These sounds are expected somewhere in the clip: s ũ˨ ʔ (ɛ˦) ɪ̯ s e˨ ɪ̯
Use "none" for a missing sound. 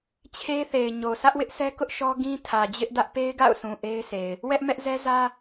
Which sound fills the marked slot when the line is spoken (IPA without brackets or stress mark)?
e˦